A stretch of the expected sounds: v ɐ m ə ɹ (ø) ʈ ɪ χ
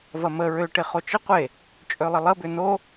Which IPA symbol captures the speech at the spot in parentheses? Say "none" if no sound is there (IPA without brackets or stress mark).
ø